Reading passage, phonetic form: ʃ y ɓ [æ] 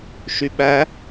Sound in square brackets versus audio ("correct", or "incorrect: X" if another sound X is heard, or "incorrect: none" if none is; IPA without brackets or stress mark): correct